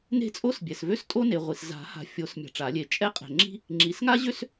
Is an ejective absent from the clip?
no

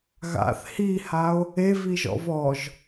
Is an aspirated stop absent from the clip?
yes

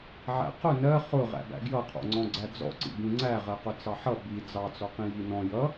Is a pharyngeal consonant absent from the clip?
no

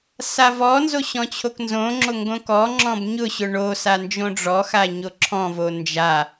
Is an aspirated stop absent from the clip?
no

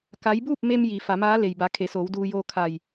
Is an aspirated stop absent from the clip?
no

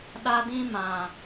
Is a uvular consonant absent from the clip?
yes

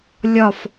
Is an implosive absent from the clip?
yes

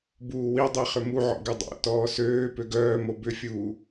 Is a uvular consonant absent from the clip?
no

